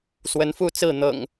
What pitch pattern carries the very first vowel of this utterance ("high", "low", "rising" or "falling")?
rising